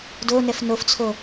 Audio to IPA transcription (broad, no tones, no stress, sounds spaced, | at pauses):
d o n ɛ f n o f t͡sʰ o